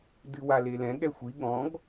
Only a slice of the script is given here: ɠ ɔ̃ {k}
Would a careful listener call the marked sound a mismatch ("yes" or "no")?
yes